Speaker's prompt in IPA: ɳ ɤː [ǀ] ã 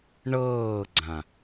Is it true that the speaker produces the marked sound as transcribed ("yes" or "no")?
no